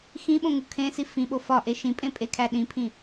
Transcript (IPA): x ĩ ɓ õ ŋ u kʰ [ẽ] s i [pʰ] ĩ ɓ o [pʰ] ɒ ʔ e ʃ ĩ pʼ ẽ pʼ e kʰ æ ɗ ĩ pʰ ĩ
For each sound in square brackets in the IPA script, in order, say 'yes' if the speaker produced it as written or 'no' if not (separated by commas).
yes, no, no